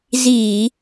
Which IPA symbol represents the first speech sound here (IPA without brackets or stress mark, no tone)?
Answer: z